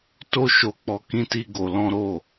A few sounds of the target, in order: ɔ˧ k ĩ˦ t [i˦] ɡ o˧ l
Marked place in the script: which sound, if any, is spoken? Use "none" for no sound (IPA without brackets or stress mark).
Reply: i˦